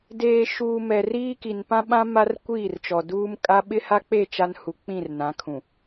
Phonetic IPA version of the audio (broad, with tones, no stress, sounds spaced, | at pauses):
d eː˨ ʃ uː˨ m ɛ˨ r iː˦ k i˨ n p ã˦ ɓ ã˦ m a˦ r kʷ iː˦˨ r t͡ʃ ɔ˨ d uː˦ m kʼ a˦ ɓ ɪ˦ h a˦ k͡p e˦˨ t͡ʃ a˦ n h u˨ k͡p ĩ˦˨ r n ã˨˦ kʰ ũ˨